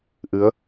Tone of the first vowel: rising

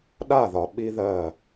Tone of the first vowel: falling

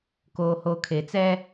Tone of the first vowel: low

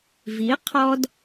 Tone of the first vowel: rising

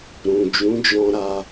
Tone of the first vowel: low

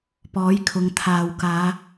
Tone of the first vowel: rising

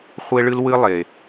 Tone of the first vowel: high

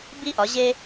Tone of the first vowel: high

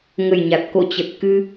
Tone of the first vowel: low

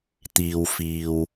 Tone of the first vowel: low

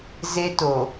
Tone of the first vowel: high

